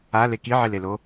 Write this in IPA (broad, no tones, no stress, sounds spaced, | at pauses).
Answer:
a l e k i ʕ i l e l o